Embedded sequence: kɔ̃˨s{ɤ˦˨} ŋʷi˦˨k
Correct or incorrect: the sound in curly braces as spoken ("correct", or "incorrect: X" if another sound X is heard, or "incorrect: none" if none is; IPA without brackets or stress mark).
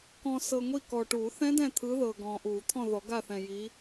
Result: incorrect: ɤ˨